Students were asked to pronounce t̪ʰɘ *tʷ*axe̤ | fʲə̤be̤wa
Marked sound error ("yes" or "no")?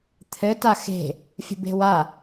yes